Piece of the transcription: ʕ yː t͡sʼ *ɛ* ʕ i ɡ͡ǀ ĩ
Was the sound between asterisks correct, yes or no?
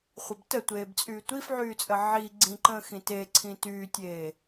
no